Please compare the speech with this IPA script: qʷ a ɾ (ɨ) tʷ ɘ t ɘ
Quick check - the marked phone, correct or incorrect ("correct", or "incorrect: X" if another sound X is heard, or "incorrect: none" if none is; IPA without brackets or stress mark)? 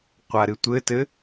correct